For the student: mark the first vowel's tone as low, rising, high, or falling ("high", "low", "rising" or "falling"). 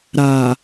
low